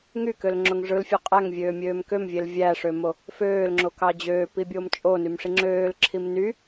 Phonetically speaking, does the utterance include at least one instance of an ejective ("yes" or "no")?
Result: yes